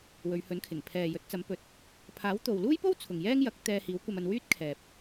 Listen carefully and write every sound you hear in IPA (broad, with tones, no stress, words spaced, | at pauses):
wɵ˨˧ɥhɵ˨˥nkʰɪ˨˩ŋ pʰɛː˨jɵ˨˥t̚ t͡sɐ˨˥mpɵ˨˥t̚ | pʰaː˨˥wt̪o˨wluː˥jpo˥w t͡sʰʊ˨ŋjɛː˥ŋjɐ˨˥k̚ t̪ɛː˧hiː˨˥wkʷɐ˧mɐ˧n wyː˥t̚kʰɛː˨p̚